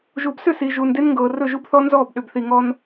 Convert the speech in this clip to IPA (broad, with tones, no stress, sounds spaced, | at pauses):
ʒ uː˨ b s ʏ˦˨ s i˨ ʒ uː˨ n d e˦ n ŋ ɡ ɤː˨ r ɵ˦˨ ʒ u˦ b θ ɔ˦ n z ɔː˦˨ b ɗ ʏ˨ b θ i˨ ŋ ɔ˦ n